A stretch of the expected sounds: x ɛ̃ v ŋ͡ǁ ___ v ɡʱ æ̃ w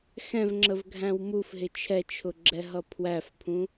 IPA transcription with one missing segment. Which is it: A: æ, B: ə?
B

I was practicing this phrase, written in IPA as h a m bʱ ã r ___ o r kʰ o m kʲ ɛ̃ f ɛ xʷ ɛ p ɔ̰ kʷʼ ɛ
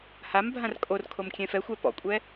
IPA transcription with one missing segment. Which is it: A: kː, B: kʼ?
B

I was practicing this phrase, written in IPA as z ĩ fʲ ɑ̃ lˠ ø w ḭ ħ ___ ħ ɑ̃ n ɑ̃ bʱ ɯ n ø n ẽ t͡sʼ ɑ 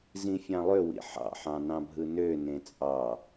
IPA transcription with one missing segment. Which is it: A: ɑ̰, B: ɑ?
A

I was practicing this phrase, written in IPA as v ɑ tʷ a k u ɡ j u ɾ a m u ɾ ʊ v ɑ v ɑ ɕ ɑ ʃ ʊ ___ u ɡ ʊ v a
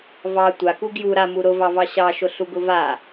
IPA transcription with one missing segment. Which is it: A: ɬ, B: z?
A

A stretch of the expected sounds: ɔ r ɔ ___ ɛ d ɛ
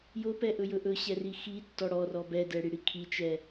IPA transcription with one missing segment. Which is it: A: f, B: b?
B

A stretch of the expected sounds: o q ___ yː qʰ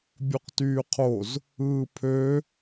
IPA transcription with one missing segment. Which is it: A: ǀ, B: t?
B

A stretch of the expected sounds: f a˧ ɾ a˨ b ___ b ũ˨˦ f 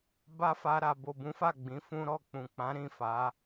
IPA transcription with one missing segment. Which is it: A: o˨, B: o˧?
A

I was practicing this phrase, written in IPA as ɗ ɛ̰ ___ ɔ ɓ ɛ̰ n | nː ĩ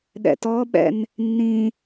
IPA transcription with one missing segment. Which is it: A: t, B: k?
A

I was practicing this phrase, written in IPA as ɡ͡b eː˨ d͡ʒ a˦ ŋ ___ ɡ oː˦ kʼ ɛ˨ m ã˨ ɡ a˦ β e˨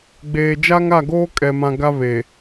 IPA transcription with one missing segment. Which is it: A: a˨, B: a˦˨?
B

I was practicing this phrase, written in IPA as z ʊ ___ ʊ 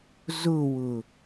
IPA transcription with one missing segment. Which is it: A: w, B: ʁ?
A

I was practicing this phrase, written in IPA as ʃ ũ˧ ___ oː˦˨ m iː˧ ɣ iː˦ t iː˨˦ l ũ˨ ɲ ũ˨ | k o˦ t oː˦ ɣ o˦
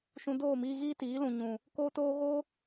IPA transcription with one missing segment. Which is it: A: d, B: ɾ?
A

